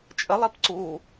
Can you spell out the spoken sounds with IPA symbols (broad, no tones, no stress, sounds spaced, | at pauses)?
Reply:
t͡ʃʼ ə lˠ i p ǀ u